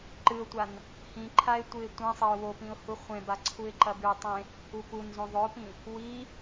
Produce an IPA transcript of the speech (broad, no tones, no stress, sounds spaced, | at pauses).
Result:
ǃ ɨ ʊ̯ tʷ a n | h ĩ ǃʰ a ɪ̯ tʷ ɨ ɪ̯ tʷ ẽ sˤ e ʊ̯ w o p ĩ ʊ̯ h u χʷ ẽ b a ǀʰ u ɪ̯ ǃ ɐ b ʉ tˤ ẽ | u p u n z õ ðˤ ɵ ʊ̯ p ĩ | w i